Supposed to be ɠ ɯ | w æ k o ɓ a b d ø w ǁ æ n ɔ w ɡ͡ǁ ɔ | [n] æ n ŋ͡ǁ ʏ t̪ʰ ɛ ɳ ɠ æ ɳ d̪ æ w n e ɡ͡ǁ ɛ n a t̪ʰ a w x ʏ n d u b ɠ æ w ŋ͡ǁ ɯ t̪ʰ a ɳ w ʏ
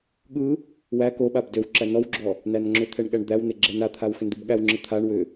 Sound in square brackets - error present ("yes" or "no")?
no